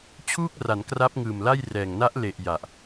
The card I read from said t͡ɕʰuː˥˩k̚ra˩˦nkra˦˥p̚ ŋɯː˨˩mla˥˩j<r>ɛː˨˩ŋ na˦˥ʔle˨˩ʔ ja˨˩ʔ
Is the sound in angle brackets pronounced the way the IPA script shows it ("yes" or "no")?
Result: yes